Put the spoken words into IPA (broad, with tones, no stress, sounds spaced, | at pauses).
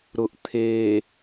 ɾ ʊ˨ ʔ t̪ʰ eː˨